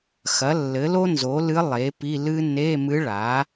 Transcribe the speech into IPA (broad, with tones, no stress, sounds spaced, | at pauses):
x ɐ˩˥ lː ɘ˩˥ l o˥ n z o˩˥ l ɨ˧˥ lˠ e˩˥ p i˧˥˧ l ɨ˥ n e˧˥˧ m ɨ˧˥ ɭ a˩˥